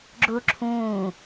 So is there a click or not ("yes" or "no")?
yes